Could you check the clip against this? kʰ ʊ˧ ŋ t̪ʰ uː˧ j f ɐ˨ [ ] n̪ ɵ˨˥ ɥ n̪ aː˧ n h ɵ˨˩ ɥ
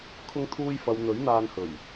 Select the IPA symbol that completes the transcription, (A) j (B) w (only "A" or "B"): B